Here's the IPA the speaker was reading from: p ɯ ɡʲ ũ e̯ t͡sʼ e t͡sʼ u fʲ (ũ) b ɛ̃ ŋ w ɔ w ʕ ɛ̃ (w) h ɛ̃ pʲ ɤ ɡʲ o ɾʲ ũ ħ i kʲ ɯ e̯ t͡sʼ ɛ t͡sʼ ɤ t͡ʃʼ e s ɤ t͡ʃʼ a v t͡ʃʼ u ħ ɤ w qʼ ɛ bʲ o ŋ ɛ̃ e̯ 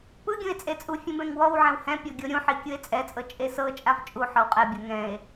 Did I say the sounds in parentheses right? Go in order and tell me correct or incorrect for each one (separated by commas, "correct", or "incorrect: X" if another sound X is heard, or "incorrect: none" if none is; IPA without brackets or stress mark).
correct, correct